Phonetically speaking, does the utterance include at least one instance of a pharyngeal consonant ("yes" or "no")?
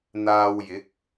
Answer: no